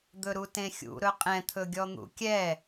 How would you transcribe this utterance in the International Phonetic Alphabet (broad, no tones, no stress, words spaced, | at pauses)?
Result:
d̪ɵɾutẽxʲṵ ɾɵqʼɛ̃t̪ʰɵɡʲɔ n̪ṵkʲɛ